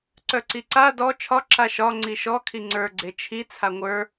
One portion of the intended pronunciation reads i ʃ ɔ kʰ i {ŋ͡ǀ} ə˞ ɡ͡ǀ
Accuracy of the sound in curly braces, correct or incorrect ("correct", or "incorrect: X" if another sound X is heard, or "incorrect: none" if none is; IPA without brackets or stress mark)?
correct